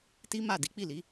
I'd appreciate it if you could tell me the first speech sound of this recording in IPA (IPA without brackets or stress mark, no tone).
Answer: t